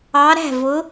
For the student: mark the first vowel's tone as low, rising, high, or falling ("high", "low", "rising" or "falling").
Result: rising